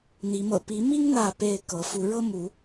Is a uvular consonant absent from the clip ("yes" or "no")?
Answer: yes